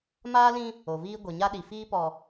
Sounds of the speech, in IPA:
maː˦lĩ˦ | o˨viː˦ ɡʷe˨ɲa˦ɗi˨ fiː˦pɔ˨

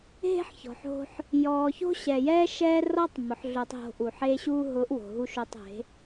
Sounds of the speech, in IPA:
ɦe̤˦ħçɔ̤˨ħo̤˧ħ | jɔː˨ço̤˦ɕɛ˨jɛː˦ ʃɛː˦ rɔ˦tˤ mʊ˨˦ħɮo˧tˤɦo̤˧ʔu˨ ħeː˧ɕuː˧ɦʊː˨˦ʔ wo̤˨ ɦu˧ʃo˧tˤe̤˨˦

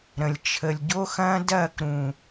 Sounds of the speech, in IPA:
ɾə̃˨lʲt͡ʃʰə˨lʲ ɟo˦xɐ̃ː˦dɐː˦˨k ɾũ˨

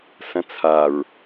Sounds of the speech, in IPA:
sɐ̃t͡sʰaɹ

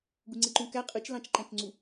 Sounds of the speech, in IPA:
ɡuŋ͡ǀeǃũkæ qʼɯt͡ʃlɑ̃t͡ʃǃæ̃t͡ʃŋ͡ǀu

